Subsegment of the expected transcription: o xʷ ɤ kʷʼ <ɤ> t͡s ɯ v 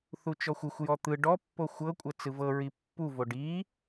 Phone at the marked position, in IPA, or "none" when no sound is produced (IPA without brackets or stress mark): ɤ